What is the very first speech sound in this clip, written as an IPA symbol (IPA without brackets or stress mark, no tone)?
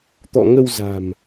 t̪